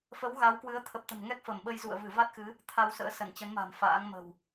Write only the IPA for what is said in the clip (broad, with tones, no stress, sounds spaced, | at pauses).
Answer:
f ə˨˦ w ɣ a˨˦ w k w ɨ˨˦ ə̯ t̪ʰ ə˨˩ p̚ t̪ ə̤˨˩ m ŋ ɛ˦˥ k̚ f ə˧˩ m ɓ ə˧ j z ṵ˧˨ ə̯ v ɨ˧˩ v a˦˥ t̚ x ɨ˨˦ | t̪ʰ a˧ w s ə̰ː˧˥ s ə˧˩ n t͡ɕ ə˨˦ n m a̤˨˩ m f a̰ː˧˥ ŋ m ə̤˨˩ w